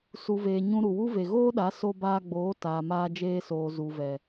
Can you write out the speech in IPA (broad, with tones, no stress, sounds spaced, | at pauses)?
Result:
s u˨ v eː˨ ɲ ũ˧ ɾ u˨ w u˦ v e˨ ɣ oː˦ ɗ a˨˦ s o˧ b aː˧ ɡ͡b oː˨˦ t aː˨ m aː˧ d͡ʒ eː˧ s oː˨ z u˨ v ɛ˨